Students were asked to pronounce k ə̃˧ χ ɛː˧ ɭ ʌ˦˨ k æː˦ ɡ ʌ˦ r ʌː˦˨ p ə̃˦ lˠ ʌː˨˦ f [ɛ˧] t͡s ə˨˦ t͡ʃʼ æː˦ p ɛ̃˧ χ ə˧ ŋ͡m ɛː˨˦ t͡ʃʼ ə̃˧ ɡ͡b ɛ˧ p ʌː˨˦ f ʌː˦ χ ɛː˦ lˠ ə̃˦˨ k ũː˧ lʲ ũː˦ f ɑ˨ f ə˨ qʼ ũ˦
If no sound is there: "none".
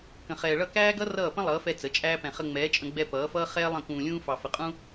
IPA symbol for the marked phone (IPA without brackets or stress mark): ɛ˧